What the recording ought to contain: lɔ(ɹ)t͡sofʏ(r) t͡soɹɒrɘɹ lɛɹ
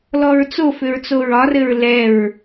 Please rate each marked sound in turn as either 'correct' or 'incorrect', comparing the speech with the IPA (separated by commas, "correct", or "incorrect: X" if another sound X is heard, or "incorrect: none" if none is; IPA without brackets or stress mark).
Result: correct, incorrect: ɹ